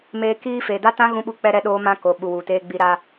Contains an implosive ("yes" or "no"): yes